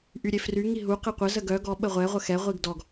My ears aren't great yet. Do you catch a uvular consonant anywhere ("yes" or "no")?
yes